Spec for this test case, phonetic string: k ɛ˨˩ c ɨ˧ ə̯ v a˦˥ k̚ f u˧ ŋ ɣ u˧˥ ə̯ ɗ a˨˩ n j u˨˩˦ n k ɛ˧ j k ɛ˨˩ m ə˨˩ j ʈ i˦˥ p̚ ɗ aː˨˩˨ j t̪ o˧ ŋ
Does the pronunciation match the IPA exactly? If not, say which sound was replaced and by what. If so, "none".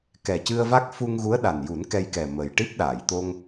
none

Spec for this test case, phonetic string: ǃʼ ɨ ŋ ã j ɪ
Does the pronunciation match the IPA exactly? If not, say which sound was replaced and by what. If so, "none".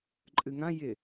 none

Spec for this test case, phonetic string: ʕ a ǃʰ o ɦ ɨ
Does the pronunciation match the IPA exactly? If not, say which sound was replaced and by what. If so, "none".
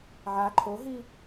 ɨ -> i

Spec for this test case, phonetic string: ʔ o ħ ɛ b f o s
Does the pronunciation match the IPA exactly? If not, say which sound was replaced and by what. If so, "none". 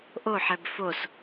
none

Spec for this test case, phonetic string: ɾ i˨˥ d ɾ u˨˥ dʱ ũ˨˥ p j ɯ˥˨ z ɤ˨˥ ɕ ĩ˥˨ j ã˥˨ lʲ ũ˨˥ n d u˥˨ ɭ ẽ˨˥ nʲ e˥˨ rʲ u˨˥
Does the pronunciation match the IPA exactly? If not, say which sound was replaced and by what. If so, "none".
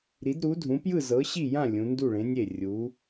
ĩ˥˨ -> i˥˨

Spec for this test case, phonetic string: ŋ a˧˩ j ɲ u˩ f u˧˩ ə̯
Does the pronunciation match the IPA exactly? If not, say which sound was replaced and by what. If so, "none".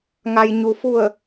a˧˩ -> a˩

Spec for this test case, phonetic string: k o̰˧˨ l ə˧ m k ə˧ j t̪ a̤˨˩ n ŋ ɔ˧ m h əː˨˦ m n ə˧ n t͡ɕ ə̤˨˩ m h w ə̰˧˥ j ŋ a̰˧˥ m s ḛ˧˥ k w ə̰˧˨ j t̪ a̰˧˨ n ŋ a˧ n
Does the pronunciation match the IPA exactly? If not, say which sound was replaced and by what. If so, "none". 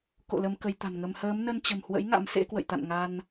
ɔ˧ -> ə˧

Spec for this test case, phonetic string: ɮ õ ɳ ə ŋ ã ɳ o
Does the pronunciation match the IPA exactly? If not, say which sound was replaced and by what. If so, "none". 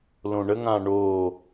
ɮ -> l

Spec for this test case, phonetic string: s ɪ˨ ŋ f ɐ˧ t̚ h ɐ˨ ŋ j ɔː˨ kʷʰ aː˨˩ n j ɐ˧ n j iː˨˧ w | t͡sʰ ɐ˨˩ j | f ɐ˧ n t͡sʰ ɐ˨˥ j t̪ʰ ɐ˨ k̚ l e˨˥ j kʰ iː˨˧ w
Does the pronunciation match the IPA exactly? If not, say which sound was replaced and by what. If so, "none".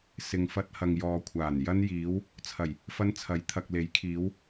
none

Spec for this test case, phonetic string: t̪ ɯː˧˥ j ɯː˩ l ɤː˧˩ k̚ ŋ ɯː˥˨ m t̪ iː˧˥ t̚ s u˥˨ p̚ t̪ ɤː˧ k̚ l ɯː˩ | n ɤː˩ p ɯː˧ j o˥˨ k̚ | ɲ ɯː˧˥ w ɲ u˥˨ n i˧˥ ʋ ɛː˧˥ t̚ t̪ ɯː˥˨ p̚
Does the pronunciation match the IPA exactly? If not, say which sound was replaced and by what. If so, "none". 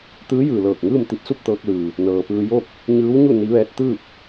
iː˧˥ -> i˧˥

